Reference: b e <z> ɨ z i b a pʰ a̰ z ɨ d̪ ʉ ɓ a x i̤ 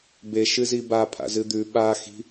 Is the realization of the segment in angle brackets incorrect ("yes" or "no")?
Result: yes